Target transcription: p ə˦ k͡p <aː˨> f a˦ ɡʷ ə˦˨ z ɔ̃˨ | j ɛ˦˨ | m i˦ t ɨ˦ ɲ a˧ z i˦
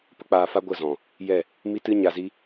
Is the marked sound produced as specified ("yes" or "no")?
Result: no